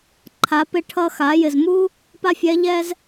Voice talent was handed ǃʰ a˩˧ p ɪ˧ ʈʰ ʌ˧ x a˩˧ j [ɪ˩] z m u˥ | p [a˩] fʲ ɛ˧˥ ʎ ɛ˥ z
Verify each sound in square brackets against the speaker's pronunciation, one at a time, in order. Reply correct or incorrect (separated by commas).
correct, incorrect